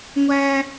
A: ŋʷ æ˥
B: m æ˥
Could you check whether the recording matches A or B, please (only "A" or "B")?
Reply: A